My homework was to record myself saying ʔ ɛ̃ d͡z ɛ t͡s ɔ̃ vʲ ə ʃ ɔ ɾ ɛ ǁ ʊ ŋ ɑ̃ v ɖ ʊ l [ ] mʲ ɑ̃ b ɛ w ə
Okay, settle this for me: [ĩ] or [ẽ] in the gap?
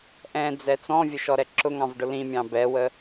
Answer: ĩ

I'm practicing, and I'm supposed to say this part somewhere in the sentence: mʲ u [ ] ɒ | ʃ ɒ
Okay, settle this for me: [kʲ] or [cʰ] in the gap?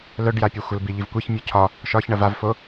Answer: cʰ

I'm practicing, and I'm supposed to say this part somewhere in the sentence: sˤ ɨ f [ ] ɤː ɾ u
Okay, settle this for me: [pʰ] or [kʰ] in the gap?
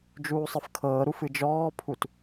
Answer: kʰ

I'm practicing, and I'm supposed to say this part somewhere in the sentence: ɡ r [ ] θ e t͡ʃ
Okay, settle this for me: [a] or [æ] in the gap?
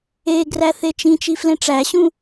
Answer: æ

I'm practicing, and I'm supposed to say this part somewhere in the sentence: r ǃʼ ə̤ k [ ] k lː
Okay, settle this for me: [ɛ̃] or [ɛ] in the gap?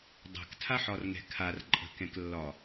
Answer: ɛ̃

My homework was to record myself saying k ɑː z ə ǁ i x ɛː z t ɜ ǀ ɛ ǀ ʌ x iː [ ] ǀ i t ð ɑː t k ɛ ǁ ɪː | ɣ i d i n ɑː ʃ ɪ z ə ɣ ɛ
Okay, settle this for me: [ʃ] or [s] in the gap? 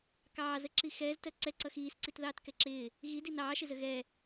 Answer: s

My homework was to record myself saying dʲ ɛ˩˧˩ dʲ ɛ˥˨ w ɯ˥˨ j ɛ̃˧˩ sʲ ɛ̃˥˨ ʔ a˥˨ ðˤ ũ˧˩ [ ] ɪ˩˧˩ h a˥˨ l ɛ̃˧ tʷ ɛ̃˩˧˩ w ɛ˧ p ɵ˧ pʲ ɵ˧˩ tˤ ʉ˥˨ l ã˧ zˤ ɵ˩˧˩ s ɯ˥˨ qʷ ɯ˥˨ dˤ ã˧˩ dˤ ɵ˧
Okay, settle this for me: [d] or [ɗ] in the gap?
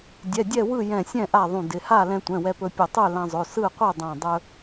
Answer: d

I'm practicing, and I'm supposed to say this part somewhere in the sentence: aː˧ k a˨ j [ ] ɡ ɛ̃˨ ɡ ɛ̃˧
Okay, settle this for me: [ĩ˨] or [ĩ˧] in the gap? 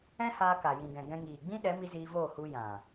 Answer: ĩ˨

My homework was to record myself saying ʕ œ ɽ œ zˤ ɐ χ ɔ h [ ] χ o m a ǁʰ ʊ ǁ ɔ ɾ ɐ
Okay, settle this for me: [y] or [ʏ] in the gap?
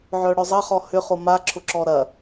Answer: ʏ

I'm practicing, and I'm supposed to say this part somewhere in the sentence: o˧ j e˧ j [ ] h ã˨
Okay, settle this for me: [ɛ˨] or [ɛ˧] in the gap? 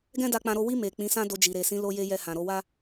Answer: ɛ˧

